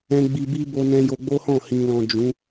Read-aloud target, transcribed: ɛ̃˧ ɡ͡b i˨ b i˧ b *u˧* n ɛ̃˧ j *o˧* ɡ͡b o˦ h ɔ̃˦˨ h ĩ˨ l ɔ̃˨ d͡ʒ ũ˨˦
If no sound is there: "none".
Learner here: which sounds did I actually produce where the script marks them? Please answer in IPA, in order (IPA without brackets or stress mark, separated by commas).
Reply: o˧, o˧